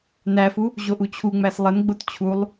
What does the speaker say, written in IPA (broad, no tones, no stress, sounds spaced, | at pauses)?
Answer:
n æ f u | ʑ o ʔ u t͡ɕʰ u ŋ͡m æ s lˠ ə n ɡ͡b o t t͡ɕʰ u lˠ